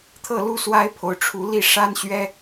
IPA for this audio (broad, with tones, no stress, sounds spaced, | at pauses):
t̪ʰ ɤ˥˨ l u˦ s w a˦ ɪ̯ pʰ o˨˦ ʊ̯ ʈ͡ʂʰ u˨˦ l i˥˨ ʂ a˦ n ɕ ɥ ɛ˦